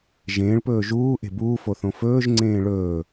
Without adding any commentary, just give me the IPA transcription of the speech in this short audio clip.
ʒ ẽː ɭ p ɵː ʒ uː ʔ e̤ b uː f o θ õ f ɵː ʒ ŋ͡ǀ ẽː ɭ ɵː

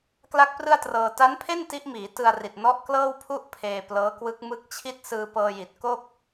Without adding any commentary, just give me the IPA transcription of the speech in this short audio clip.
k l a˥˩ k̚ p r ɯ˥˩ a̯ t r ɤː˧ t a˦˥ n pʰ e˥˩ n t i˦˥ ʔ m iː˩˦ t ɯ˧ a̯ r i˨˩ t̚ n ɔ˦˥ ʔ k l ɤː˥˩ w pʰ u˥˩ ʔ pʰ eː˧ p l ɤː˦˥ k w ɯ˦˥ k̚ m ɯ˦˥ k̚ t͡ɕʰ i˥˩ t̚ s ɯː˧ p ɤː˧ j i˨˩ t̚ k o˥˩ k̚

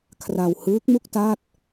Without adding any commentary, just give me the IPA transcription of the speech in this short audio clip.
kʰ r a˧ w h ɯː˦˥ k̚ m u˥˩ k̚ t a˥˩ t̚

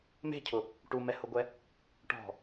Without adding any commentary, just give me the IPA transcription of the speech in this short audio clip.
m e̤ cʰ ʊ | ʈ u m ɛ h ʊ ɡʷ ɛ | ʈ ɔ̤

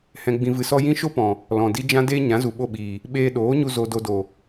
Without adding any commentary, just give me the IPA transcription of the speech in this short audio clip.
h ɛ̃˧ ɡ͡b ĩ˧ v ɨ˧ s ɔ˦ j ĩ˦ ʃ o˦ p ɔ̃˨ | l ɔ̃˨ d i˦ d͡ʒ ã˦ d eː˦ ɲ ã˨˦ z u˨ ɓ o˦˨ ɓ iː˨ | ɓ eː˧ ɗ oː˨˦ ɲ u˧ z o˧ d o˧ d o˨

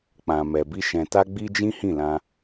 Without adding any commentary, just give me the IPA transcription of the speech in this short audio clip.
k͡p ã˨ m ɛ˨ b i˧ ʃ ɛ̃˨ t a˧ ɡ͡b i˧ d͡ʒ ĩ˦ h ĩ˦˨ l ã˧

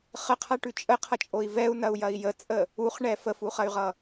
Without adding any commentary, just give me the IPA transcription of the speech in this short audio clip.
χ ə qʰ a ʈ ʉ t͡ʃʼ ə qʰ ʌ t͡ʃʼ o i̯ v ɛ u̯ n ɐ u̯ j ɐ i̯ j ə t͡sʼ ə | u χ ɳ ɛ f ə f u χ ɐ y̯ ʁ ʌ

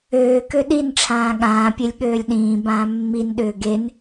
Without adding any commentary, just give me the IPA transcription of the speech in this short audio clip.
øː k ø ɗ i n ʈ͡ʂʰ ãː ɠ ãː pʲ e lʲ ɠ øː lʲ ɗ ĩː b ãː mː i n ɗ ʏː ɡ e n

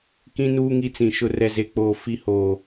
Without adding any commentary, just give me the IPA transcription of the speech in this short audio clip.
k ĩ˦ n uː˦ ŋ i˦ t͡s ĩ˨ ʃ ʊ˨ r ɛ˨ z e˨ k͡p oː˨ f i˨ h oː˨

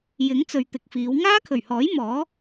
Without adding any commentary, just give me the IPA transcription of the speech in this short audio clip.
j ɪ˨˥ ŋ t͡s ɵ˨ ɥ t̪ ɪ˨ k̚ f iː˨˧ w ŋ aː˥ kʰ ɵ˨˩ ɥ h ɔː˨˥ j m ɔː˨˥

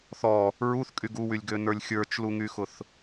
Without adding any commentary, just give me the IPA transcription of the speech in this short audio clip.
θ ɔ | ɹ u θ kʼ y ɡ u w y lʲ ɡ ø n ə˞ lʲ xʲ ə˞ t͡ʃ l u ŋ y x ʊ θ

